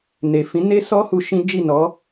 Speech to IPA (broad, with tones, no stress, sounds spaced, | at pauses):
n e˨ f ĩ˨˦ n e˦ s ɔ˦ h u˧ ʃ ĩ˦ d͡ʒ i˦˨ n ɔ˨˦